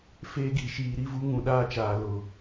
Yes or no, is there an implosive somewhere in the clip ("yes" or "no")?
yes